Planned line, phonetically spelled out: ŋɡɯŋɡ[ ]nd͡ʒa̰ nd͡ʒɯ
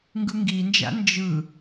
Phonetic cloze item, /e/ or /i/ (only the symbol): i